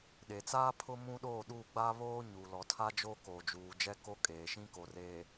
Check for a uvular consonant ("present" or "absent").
absent